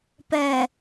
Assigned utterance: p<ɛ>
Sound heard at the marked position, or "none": ɛ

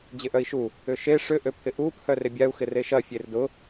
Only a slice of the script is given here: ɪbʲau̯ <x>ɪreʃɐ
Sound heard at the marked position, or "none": x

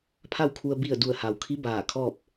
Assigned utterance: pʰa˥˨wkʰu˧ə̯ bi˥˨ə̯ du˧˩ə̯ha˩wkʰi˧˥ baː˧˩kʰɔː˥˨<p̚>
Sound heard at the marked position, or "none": p̚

